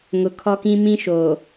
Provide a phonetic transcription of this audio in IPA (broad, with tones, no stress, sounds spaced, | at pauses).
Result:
ŋ ʊ˨ kʰ ɔ˦ k ĩ˦ m ĩ˦ ʃ oː˨